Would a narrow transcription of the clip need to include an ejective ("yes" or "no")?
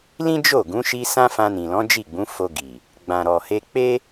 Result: no